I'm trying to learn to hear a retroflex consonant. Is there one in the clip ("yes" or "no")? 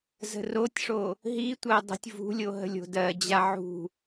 yes